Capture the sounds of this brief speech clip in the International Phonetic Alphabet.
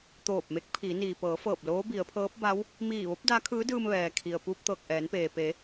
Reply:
t̪ oː˧˩ p̚ m e˧˥ k̚ pʰ iː˩˧ n iː˩ p ɤː˩˧ f ɤː˧˩ p̚ l oː˧˥ b i˩˧ ə̯ pʰ ɤː˧˥ p̚ b a˧˥ w | m iː˧˩ ʋ o˧˥ p̚ d a˧˥ kʰ ɯː˧˥ d ɯː˧ m ʋ ɛː˩ kʰ i˩ ə̯ p u˧ p̚ t̪ ɤː˧˩ k̚ ʔ ɛː˩˧ n p eː˩ p e˩˧

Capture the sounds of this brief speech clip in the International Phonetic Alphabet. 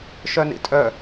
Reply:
ʃ œ n ḭ tʼ œ

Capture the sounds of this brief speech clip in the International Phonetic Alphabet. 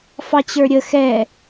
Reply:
f ɑ t͡ɕ ə˞ ɾʲ ə x ɛ

